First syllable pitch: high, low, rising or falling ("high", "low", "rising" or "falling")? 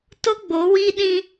high